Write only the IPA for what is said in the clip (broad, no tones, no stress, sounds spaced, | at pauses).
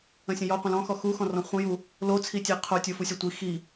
ə̃ sʲ ə̃ j ɔ qʷ ə̃ l ɔ̃ x ɔ x u x ɔ̃ r ɔ̃ χʷ ə̃ j u | l o t͡sʰ i tʲ e qʰ o tʲ o f u sʲ ɒ tʷ i x i